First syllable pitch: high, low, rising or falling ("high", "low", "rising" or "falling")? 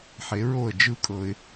rising